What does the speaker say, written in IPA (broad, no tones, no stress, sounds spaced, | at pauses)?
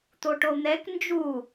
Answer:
t̪ o ʈ o n̪ ɛ k n d͡ʒ u